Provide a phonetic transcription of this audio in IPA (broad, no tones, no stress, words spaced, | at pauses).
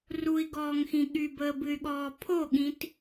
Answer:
rui̯ɡɔːŋxĩ ɠybəːbɨy̯ɠɔː pʰoɠĩt